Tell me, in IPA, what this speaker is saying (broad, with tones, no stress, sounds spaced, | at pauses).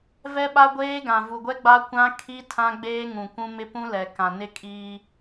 v ɛ˦ ɓ a˦ ɡʷ eː˦ ɡ ã˨ v u˨ ɡʷ ɛ˦ ɡ͡b a˦ kʷ ã˦ kʰ i˦ tʰ ã˦ ɡ͡b eː˦ ŋ ũ˨ kʷ ũ˦ m ɪ˦ p ũ˦ l ɛ˨ k ã˨ n ɪ˦ kʼ iː˦